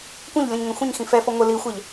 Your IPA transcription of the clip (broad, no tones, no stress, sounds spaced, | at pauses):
kʷ ɛ̃ ʎ lʲ ɔ̃ ɲ ŋ ɛ̃ xʷ ĩ ɲ x ĩ f ɛ f ɔ ŋʷ ɘ l i xʷ ɛ ʎ